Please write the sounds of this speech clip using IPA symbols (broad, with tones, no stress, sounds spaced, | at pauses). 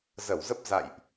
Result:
z ə˧˩ w z ə˦˥ p̚ z a̰˧˨ j ʔ